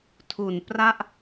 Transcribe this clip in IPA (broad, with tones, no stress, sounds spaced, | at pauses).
tʰ u˨˩ n p r a˥˩ ʔ